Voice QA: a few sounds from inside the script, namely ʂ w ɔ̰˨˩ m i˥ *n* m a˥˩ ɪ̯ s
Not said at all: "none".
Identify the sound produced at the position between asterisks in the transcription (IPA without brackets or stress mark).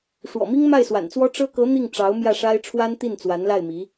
ŋ